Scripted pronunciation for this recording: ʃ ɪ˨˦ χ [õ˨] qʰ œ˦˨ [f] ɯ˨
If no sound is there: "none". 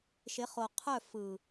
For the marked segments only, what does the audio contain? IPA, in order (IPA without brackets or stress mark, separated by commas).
o˨, f